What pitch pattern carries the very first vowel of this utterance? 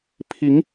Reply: rising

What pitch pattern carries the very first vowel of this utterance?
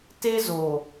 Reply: high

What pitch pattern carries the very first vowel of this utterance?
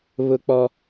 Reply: high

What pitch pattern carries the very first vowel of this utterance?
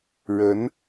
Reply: rising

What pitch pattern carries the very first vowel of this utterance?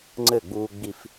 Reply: falling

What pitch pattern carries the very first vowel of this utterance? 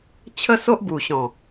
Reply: high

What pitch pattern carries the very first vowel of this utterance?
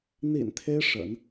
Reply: low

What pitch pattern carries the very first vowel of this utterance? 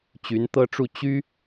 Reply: rising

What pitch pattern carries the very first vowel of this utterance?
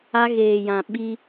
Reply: high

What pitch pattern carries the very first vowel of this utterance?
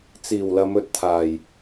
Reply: low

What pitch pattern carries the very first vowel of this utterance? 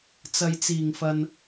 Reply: low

